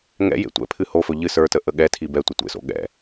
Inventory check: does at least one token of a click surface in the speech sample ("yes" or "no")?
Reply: no